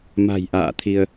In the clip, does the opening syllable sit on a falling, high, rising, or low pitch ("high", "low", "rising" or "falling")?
low